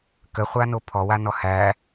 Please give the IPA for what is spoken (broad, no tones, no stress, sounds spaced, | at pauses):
k ə χʷ a n o pʰ ɔ w a n ɔ h æ